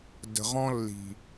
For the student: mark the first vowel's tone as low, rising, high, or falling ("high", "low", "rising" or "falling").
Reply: low